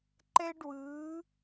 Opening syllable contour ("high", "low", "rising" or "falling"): high